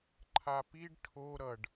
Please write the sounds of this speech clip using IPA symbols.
ǃʰ a p i ɖ ʈʰ o ɾ ʌ ɖ

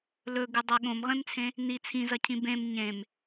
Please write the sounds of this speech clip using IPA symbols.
l ɵ ɡ ɨ dˤ ɐ ɠ õ m ʁ ẽ m t͡sʰ ẽ | n i t͡sʰ ĩ z ɐ cʰ ĩ b ẽ m ɲ ẽ m

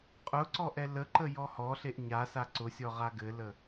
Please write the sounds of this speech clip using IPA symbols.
qʼ ʊ ǀ ɔ ʔ ɛ l ə ǃ ə j ɔ h ɔ ɬ e ʔ ɲ a s a ǀ ʊ sʲ ɔ ʁ a ɡ ɘ l ə

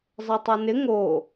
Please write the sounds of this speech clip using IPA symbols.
zˤ ɛ tˤ o n ɪ ŋ o

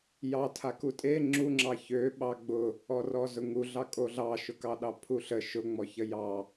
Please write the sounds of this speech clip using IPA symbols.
j ɑ tʰ a k u tʼ e ŋ͡ǁ u ŋ͡ǁ ɑ ç ø ɓ ɑ ɡ͡b ʊ | ɔ r ɔ z ʊ ŋ u ɮ ɑ kʼ o ɮ ɑ ʃ ʊ k ɑ ɗ ɑ pʰ u ɬ ə ʃ ʊ ŋ͡m ɔ ç ə j ɑ

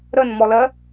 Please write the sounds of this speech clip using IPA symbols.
ɾ ə n m ɔ l ɜ

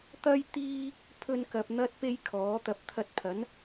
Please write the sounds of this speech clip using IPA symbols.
t̪ ɐ˥ j t̪ iː˥ | pʰ ɵ˧ n k ɐ˨ p̚ n̪ ɐ˥ t̚ p e˥ j kʰ ɔː˨˥ t̪ ɐ˧ p̚ t̪ʰ ɐ˧ t̚ pʰ ɐ˨˥ n

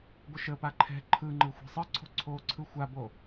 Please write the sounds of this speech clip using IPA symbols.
ɡʷ ə ʃ ə p a ǃʰ ɛ̤ ǃʰ ɯ ŋ͡ǃ ɯ xʷ ɛ̤ sˤ ɯ ǀʰ o̤ ǀʰ oː ǀʰ ɯ xʷ a b o

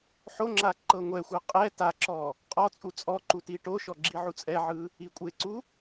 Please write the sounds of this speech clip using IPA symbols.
ħ o ŋ͡ǁ a ǃ ɤ ŋʷ ɛ xʷ ɤ qʼ ɛ t a ǁ ɔ | qʼ ɔ t͡sʼ u t͡sʼ ɔ ǃ u t i ʈ o ʃ ɔ ɡ͡ǁ i ʕ u t͡sʼ ɛ ʕ ɯ | i kʷʼ e ǀ u

